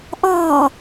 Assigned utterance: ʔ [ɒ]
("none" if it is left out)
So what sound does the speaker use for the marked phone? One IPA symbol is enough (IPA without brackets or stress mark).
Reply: ɒː